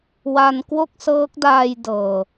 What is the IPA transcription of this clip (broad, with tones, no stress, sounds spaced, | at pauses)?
w a˧ n k w o˥˩ k̚ s ɤː˦˥ k̚ d aː˧ j d ɤː˨˩